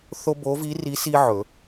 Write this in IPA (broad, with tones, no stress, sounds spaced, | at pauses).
θ o˥ b o˧˥ v i˧˥ r i˧˥ s i˥ ʕ ɵ˨˩˦